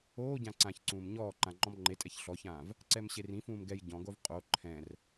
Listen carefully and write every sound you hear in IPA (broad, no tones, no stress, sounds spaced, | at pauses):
oː ɟ ã ǀ ãː ç ǀ ũː m ɲ ɔː ǃ ã ŋ͡ǃ ɔ̃ m ŋ͡ǃ e tʼ ɛ ç ɬ ɔ ç ãː v | ǀ ɛ m ɕ e r ĩ f ũː m ɡ ɛ j ɟ ɔ̃ ɡ o v qʼ o ǃʰ ɛ̃ r